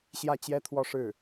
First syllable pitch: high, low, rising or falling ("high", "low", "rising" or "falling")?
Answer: falling